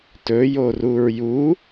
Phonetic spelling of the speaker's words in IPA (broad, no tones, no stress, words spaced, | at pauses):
tɵjoruɹ ju